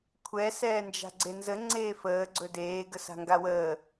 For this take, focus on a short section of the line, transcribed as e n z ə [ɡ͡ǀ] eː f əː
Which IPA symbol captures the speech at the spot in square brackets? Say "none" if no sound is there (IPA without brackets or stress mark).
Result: ŋ͡ǀ